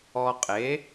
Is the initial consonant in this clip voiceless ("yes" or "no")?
yes